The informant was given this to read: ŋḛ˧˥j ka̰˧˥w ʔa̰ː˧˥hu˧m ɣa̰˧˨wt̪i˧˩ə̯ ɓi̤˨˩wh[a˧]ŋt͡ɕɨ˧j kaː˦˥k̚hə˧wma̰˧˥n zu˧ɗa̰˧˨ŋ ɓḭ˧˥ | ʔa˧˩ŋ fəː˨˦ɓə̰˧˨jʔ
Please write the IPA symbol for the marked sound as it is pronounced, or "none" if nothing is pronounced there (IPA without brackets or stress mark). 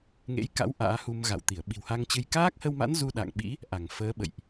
a˧